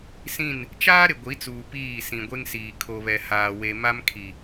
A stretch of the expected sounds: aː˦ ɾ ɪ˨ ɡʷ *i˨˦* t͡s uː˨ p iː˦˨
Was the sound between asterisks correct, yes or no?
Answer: yes